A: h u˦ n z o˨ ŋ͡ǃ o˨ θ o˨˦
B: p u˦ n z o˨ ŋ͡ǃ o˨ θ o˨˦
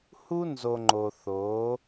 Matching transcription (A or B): A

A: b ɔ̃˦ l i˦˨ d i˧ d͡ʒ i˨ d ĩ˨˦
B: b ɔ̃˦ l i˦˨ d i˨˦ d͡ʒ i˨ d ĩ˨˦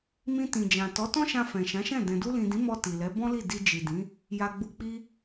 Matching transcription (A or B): A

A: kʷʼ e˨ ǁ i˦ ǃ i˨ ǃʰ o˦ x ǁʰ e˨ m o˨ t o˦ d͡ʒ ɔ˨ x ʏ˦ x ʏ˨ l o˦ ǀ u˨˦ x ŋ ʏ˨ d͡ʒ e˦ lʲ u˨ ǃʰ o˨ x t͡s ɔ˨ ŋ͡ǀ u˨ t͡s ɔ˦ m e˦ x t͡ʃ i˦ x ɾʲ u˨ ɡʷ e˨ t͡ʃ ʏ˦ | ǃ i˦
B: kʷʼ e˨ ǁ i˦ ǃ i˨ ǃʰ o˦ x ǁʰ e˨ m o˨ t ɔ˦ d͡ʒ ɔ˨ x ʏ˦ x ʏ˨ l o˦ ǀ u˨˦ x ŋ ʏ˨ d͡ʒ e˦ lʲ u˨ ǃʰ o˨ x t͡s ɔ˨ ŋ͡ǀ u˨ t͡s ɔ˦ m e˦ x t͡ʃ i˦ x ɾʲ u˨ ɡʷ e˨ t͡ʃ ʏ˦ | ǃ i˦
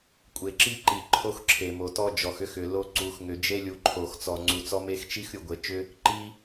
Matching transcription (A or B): B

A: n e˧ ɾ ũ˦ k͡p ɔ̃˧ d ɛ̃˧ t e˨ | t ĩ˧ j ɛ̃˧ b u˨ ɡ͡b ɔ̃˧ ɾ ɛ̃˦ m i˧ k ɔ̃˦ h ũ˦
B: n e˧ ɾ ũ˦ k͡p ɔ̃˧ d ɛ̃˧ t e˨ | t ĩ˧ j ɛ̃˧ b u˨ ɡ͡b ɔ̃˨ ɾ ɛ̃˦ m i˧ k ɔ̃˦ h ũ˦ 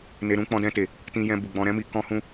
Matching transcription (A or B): A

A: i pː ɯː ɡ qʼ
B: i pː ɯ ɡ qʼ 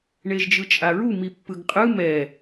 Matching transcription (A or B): B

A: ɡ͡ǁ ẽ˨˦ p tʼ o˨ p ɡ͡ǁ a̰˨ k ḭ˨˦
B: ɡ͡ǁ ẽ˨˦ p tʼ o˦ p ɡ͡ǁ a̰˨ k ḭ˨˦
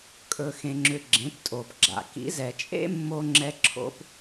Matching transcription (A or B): A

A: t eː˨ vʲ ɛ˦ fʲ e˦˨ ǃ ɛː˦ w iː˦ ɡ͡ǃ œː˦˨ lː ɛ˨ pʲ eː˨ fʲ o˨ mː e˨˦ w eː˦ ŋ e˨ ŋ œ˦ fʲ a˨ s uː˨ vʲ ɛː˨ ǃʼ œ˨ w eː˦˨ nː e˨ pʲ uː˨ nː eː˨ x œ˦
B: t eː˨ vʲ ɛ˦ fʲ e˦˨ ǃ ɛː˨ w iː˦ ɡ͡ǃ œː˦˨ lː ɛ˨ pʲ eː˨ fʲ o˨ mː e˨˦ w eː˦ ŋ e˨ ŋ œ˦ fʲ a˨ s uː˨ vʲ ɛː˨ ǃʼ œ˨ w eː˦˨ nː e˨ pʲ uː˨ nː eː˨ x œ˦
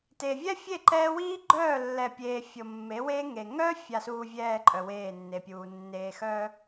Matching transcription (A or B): A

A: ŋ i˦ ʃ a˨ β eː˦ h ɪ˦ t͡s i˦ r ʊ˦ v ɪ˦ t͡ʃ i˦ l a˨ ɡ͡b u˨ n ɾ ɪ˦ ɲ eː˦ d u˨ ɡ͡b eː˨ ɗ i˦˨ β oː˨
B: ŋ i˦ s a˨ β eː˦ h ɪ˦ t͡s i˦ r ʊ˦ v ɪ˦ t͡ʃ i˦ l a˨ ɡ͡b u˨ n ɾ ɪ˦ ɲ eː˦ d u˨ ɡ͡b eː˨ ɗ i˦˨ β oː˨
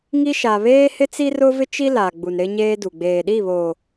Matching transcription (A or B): A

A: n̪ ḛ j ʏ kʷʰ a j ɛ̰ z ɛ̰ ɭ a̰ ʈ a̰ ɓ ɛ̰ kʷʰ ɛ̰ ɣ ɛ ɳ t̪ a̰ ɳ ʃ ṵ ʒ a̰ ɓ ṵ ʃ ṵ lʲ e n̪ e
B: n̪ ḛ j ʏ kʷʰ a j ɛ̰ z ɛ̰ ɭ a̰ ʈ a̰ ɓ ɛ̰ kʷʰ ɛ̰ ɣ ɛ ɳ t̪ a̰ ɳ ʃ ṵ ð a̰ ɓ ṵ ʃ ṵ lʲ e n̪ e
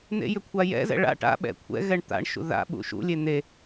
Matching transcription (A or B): B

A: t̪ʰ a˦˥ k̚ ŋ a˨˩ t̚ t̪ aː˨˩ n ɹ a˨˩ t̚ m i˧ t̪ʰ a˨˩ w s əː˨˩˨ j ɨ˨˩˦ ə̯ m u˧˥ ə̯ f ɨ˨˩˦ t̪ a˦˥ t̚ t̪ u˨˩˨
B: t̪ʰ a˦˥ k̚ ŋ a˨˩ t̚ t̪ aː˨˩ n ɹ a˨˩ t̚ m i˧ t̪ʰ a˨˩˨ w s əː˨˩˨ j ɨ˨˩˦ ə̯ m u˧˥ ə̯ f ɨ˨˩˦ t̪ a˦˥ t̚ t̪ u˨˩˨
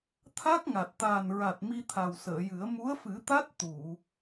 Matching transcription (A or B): A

